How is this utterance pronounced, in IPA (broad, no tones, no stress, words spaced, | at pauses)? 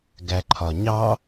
ɡæǃʰɒɲɑ